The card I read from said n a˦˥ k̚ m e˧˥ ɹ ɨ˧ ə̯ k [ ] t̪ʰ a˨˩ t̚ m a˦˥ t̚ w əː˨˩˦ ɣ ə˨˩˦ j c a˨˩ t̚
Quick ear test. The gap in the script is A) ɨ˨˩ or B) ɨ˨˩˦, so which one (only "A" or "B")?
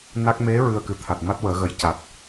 A